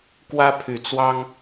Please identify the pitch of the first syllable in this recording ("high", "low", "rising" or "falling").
high